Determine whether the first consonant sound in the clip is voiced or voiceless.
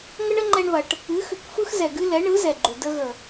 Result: voiced